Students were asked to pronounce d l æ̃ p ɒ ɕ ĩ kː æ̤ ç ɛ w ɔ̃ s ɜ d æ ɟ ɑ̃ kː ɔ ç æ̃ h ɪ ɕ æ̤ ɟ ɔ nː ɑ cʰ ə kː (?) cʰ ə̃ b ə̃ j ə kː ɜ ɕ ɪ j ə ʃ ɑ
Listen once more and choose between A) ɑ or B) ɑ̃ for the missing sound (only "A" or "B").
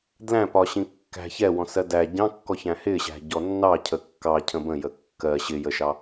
A